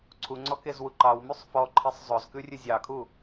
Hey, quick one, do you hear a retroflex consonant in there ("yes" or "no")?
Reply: no